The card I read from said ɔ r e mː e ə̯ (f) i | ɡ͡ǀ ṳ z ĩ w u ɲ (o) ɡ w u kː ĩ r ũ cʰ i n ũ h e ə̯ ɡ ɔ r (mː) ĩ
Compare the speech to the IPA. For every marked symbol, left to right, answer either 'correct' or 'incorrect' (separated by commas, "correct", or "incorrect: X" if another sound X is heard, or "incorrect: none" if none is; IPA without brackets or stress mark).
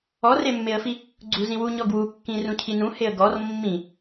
correct, incorrect: ɔ, correct